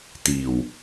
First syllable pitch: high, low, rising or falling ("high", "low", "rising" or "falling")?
low